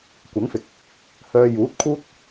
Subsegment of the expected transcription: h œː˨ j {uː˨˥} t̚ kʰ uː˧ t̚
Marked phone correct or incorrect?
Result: correct